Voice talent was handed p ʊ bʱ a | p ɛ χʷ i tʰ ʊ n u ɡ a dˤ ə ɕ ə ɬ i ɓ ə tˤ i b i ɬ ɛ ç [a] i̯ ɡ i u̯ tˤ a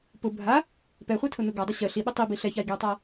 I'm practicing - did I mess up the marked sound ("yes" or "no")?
no